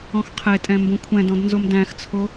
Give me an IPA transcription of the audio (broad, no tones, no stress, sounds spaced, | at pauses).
ɔ̃ x qʰ e tʼ ɛ̃ m b õ kʷʰ ɛ̃ d ɔ̃ d n z o m d æ̃ x t͡sʰ o